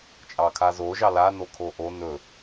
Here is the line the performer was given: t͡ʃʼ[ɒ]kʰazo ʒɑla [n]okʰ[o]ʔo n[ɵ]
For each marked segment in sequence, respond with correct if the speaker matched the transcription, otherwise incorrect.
incorrect, correct, correct, correct

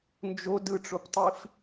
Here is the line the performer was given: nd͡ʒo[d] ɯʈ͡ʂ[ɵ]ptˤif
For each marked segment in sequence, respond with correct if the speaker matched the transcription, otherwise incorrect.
correct, incorrect

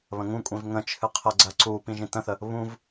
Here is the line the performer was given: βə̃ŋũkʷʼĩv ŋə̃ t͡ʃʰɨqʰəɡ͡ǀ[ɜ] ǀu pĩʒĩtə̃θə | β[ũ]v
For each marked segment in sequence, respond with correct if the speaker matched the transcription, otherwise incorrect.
correct, correct

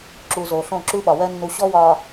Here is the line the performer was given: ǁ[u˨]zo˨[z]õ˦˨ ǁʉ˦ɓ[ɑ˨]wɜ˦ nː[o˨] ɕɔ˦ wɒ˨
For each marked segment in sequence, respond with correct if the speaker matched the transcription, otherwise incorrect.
correct, incorrect, incorrect, incorrect

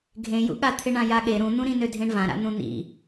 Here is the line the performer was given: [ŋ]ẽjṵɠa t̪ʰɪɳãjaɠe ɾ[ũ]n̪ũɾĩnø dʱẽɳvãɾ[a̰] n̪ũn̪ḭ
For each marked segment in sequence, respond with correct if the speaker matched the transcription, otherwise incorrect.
incorrect, correct, correct

